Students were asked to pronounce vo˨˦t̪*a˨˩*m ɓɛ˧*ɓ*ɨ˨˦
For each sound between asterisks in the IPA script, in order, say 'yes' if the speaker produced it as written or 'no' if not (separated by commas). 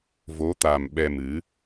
yes, no